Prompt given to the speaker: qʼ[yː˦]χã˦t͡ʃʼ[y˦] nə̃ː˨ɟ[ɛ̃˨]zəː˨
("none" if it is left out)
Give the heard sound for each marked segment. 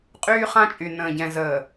yː˦, y˨, ɛ̃˨

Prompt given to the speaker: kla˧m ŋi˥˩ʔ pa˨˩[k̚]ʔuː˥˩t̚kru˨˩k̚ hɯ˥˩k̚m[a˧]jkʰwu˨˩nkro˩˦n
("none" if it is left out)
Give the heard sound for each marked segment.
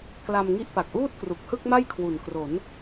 k̚, a˥˩

